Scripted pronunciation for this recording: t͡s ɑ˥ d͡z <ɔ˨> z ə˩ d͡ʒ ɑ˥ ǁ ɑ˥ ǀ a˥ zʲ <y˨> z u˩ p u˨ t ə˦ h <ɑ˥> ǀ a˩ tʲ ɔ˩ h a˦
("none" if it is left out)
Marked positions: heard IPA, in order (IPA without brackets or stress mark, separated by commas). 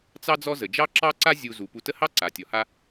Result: ɔ˦, u˨, ɑ˥